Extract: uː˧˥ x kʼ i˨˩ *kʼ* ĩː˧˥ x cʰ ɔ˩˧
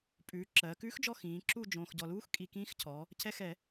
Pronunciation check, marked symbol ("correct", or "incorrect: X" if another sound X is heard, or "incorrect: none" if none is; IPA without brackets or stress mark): incorrect: k